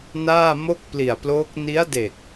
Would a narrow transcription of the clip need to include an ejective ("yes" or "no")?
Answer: no